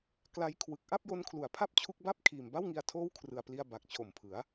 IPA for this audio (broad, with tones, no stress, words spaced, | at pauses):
kla˦˥j kʰwɯ˨˩k̚ ʔa˥˩p̚jo˧nkʰlu˩˦a̯pʰa˥˩p̚ t͡ɕʰu˦˥k̚ba˥˩p̚ kʰiː˨˩mba˥˩wŋi˧a̯ tʰoː˥˩wkʰrɯ˨˩a̯pli˧a̯ ba˨˩k̚t͡ɕʰo˨˩mpʰɯ˩˦a̯